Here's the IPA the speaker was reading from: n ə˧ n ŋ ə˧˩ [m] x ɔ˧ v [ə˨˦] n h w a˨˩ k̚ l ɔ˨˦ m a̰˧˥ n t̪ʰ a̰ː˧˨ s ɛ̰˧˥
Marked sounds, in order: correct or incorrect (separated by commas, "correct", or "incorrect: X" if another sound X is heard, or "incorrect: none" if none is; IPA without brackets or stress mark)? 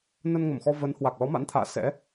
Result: correct, correct